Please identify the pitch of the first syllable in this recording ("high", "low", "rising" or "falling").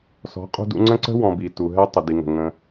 rising